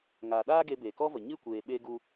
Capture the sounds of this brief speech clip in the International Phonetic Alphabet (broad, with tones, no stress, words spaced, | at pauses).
ŋaː˨ɗaː˦ ɡe˧be˨kɔ˦və˨ ɲɨ˦˨kʷeː˨ ɓe˦ɡu˦